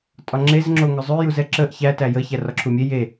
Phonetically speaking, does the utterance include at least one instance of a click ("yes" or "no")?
yes